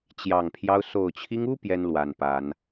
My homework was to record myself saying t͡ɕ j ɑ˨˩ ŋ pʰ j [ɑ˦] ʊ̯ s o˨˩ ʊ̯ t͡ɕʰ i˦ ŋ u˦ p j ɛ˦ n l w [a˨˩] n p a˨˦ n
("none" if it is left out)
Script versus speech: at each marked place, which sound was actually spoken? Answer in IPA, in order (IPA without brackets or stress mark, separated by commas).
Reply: ɑ˦, a˨˩